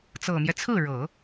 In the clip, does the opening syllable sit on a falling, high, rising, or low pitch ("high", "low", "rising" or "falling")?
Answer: low